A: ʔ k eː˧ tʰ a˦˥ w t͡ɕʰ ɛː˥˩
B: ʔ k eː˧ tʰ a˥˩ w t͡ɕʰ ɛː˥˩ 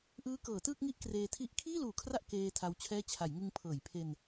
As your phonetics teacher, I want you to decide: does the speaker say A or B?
A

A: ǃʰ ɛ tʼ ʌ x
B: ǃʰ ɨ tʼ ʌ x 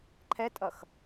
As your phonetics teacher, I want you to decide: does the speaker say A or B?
A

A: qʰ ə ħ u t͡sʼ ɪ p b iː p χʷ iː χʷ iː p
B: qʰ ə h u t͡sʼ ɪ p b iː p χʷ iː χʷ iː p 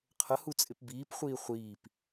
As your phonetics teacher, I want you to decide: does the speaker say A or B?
B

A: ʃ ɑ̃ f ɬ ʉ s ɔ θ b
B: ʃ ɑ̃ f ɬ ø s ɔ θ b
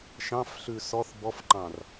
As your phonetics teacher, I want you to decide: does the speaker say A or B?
A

